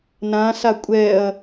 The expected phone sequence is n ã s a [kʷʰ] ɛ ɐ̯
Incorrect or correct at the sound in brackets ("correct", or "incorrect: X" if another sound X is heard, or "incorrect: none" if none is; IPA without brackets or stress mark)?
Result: incorrect: kʷʼ